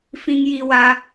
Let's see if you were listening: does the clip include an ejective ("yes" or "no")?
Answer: no